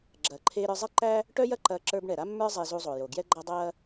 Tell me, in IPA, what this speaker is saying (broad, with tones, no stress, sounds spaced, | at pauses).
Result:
ɡ͡ǁ ɐː˨ ǃʰ eː˧ ɾ ə˞˧ zˤ e˦ ǃ æ˦ | ʈ œ˦ j ɐ˦ ǃ ɐː˧ ǁ ə˞˧ b ɳ ɛ˨ ɾ a˦ mː ə˞˦ zˤ e˧ z u˧ zˤ o˨ j o˨ ɡ j ɛ˦ ɡ͡ǃ a˦ dˤ ɐː˦